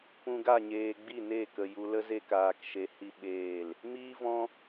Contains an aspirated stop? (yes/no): no